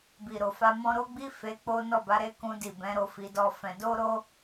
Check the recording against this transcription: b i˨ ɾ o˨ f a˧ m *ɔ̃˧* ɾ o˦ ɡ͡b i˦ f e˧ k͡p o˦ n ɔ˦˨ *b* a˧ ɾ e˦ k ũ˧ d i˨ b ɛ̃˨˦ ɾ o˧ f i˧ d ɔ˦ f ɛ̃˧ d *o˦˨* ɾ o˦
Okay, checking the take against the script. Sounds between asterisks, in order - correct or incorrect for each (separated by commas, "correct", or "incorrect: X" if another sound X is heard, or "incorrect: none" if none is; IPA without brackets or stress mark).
correct, correct, incorrect: o˦